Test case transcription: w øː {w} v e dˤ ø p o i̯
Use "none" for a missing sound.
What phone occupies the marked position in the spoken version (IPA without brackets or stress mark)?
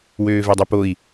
none